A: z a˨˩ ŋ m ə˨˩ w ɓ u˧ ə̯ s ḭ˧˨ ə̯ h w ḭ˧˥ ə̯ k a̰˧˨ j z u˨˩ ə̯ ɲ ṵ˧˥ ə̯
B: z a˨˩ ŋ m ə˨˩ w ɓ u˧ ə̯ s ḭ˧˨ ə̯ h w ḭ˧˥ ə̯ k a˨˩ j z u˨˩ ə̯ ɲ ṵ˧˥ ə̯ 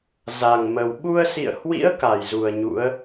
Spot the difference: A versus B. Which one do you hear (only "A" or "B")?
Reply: B